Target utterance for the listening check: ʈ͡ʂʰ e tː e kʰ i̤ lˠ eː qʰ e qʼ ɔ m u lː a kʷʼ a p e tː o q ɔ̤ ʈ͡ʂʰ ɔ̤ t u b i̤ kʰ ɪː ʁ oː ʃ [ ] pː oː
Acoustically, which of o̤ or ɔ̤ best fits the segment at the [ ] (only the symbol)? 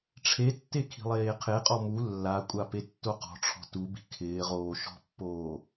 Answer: ɔ̤